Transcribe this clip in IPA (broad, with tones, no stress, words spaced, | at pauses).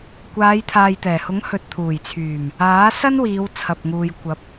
kʷaː˨˧jt̪ʰaː˨jt̪ɛː˨˩hʊ˨˥ŋ hɵ˨t̚t̪ʰuː˨˩jt͡sʰyː˨˩m | aː˨˥sɐ˥nwiː˨˧w t͡sʰɐ˨p̚ŋuː˨j kʷɐ˨˥p̚